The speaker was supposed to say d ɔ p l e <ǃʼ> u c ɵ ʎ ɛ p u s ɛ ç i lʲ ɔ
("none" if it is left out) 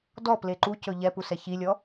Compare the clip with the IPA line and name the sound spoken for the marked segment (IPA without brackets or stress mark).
ǃ